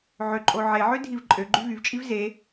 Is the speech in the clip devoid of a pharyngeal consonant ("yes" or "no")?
no